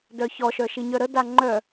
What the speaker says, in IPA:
dœçɔʃœ ʃiɲœɾəda ŋ͡ǃœ

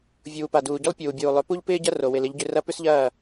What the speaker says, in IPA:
vʲuː˨pa˨duː˨ɟʏ˦lˠ pʲuː˨bʲuː˨lˠʏ˨˦ pu˦ʎpɪː˦ɟɐ˦ ro˨ wɪ˨lɪ˨˦ʎɟʏ˨˦ rɐ˦ pʏ˦sʎɐː˦˨

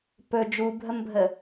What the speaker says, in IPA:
pɵ d͡ʒubʱəmbʱə

